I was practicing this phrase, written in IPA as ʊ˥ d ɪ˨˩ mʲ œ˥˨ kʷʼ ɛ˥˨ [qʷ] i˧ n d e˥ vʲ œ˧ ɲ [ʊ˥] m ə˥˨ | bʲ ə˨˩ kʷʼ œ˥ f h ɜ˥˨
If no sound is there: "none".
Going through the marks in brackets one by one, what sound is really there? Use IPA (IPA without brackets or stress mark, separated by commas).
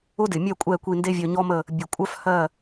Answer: kʷ, ɔ˥